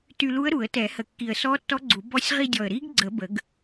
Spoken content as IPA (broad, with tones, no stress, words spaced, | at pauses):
ty˧lu˧˥ə̯ ɾu˨˩˦ə̯tɛ˨˩˦hə˨˩kːi˨˩ə̯ sɔ˧˥tːɔ˧˥ɡ͡ǀu˨˩˦ bɔ˧˥sʲ ʁi˧dʲɔ˨˩ə̯ ɾi˧˥ɡɡ͡ǀə˨˩˦bə˨˩˦ɡ